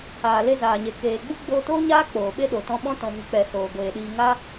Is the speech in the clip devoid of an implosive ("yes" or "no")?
no